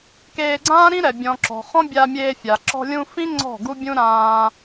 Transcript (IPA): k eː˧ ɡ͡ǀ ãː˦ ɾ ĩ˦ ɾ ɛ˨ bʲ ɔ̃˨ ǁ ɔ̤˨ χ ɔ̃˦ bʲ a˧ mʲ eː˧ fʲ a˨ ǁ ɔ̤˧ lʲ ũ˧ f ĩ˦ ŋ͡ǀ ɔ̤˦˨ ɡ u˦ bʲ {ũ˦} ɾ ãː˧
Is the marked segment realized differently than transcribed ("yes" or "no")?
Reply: no